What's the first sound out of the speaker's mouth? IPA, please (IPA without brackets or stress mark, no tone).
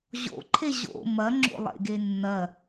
ʑ